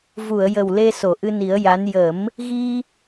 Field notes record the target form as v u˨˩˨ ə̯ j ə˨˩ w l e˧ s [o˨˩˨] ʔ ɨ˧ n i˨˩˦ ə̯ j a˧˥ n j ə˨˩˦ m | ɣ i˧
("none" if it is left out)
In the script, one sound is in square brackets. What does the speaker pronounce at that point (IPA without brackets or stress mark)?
o˨˩˨